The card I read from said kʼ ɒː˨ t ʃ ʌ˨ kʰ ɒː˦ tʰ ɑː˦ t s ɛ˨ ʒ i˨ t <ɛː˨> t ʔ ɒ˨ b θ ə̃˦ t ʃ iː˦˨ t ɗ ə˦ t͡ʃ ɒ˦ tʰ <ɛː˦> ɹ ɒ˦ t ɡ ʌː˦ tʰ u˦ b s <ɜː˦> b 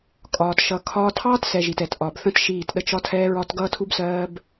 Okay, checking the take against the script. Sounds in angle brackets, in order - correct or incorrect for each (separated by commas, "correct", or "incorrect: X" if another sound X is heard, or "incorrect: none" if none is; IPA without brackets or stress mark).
incorrect: ɛ˨, correct, correct